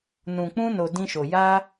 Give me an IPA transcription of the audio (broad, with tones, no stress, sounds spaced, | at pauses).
n ũ˨ k͡p ũ˧ n o˨ d ĩ˧ ʃ o˨ j a˧